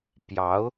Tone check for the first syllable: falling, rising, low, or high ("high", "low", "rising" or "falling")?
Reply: rising